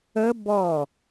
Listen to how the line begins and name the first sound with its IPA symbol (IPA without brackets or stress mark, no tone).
ə